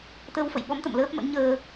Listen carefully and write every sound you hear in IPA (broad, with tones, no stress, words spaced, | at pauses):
t̪ə˧w fə̰˧˨jɓɔ˨˦mt̪ə̰˧˨m ləː˦˥p̚mə̰˧˥n ɲəː˧